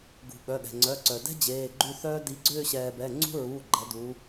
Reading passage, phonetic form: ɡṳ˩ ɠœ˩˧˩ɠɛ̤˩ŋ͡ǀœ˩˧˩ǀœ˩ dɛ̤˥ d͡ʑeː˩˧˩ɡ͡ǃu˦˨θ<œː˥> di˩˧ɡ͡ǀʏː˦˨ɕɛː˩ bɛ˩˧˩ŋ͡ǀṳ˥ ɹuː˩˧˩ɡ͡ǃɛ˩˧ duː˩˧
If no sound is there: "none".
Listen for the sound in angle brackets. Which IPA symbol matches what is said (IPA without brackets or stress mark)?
œː˥